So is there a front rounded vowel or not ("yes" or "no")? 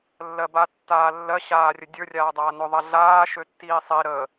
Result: yes